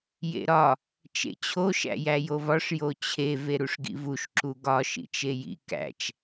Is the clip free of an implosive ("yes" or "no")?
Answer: yes